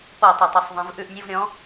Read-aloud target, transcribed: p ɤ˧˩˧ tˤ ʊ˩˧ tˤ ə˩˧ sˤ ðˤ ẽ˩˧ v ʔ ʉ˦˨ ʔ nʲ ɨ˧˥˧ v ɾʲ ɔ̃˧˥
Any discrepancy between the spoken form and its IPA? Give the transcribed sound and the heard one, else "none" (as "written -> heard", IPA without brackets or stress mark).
none